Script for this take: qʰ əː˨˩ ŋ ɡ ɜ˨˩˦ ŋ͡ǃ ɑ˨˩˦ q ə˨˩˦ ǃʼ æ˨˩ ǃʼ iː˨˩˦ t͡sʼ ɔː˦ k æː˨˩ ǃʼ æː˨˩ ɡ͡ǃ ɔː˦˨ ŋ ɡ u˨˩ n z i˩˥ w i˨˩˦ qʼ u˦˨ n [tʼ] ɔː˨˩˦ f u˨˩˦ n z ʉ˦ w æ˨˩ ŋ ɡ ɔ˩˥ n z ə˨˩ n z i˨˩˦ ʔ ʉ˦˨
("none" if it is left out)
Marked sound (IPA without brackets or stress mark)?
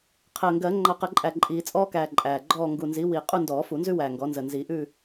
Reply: d